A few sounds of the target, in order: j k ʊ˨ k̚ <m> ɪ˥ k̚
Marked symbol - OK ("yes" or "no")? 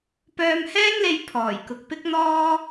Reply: no